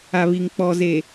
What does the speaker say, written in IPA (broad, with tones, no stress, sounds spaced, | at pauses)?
a˨ β i˨ ŋ k͡p ɔ˨ z e˨